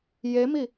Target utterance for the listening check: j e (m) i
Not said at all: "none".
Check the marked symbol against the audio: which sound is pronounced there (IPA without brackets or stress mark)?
m